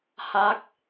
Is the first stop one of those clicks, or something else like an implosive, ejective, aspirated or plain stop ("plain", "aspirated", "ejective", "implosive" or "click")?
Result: plain